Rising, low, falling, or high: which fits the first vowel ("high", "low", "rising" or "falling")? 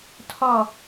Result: falling